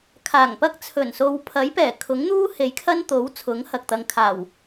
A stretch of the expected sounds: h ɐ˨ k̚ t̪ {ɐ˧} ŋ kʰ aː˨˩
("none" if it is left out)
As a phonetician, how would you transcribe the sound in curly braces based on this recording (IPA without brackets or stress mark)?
ɐ˨